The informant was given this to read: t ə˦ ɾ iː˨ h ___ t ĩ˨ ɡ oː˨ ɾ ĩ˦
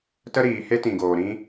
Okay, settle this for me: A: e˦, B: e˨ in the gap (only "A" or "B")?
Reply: A